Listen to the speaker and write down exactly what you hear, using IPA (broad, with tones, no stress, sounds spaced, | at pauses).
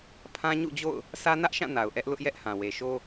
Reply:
pʰ ã˦ ɲ ṵ˦˨ d͡ʑ o̰˦˨ ʊ̯ | sʰ ä˦ n ä˦ ʔ ʃ ã˦˨ n a˨ ʊ̯ ʔ ɛ˦ ʔ l ʊ˦ ʔ j ɛ˦ ʔ h ã˨ w e˨ ʃ o˦